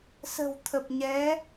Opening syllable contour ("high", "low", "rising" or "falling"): low